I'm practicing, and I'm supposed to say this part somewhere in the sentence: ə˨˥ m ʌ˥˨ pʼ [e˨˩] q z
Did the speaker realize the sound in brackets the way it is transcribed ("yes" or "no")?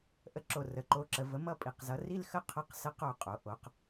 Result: no